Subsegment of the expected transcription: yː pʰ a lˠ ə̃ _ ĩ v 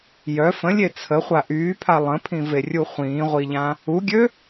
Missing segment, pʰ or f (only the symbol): pʰ